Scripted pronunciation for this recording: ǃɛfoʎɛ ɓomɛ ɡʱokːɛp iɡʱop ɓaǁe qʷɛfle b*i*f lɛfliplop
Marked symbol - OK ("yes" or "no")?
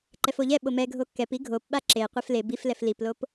yes